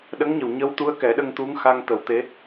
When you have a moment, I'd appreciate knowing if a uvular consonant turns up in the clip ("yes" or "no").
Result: no